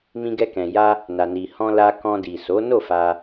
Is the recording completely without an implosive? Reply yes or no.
yes